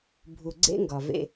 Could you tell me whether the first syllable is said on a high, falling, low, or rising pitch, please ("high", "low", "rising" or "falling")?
low